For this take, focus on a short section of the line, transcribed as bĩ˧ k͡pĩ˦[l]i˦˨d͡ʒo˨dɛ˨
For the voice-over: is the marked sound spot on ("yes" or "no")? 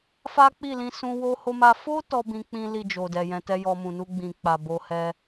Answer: yes